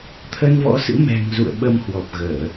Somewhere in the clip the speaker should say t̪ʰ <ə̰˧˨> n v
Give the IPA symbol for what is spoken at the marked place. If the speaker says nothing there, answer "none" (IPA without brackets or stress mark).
ə˧